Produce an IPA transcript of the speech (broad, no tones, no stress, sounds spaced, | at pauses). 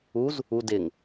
u z | u d ɪ ŋ